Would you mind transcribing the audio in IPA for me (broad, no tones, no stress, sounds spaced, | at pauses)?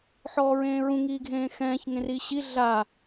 ħ ɔː ɹ ẽː ɹ ũ ŋ iː ɡʱ ẽː x ɛ̃ː ç ŋ ẽ r iː ɕ i ɮ a